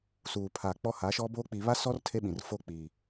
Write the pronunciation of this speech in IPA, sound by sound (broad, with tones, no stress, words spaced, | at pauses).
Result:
suː˨pʰa˨k͡pɔ˦ ha˨˦ʃɔ˦boː˦ k͡pi˨βa˦sɔ˦r tʰe˦ɓĩ˨r fo˦k͡pi˨